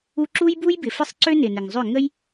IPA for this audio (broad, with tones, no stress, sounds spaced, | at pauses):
u˦ ǁ u˦ j b u˦ j b ɪ˨ f ɪ˦ sˤ ǀ ø˦ n ɪ˨ n ɪ˨ ŋ zˤ ʏ˦˨ ŋ ə˦ j